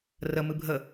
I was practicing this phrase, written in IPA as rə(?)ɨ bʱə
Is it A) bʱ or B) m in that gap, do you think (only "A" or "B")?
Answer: B